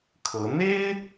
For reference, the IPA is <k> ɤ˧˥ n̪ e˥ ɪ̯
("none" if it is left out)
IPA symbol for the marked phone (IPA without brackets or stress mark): kʰ